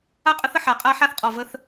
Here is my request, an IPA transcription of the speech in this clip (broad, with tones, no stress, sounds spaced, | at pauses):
a˦ qʼ ə˦ θ ə˨ ħ a˨˦ qʼ a˦ ħ a˦ θ qʼ ɔ˨ v ə˦ θ